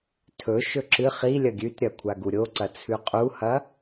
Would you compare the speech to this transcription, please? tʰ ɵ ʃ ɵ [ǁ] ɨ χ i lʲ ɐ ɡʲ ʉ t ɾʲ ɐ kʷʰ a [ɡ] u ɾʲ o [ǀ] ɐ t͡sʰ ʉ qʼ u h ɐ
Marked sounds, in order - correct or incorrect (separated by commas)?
correct, correct, correct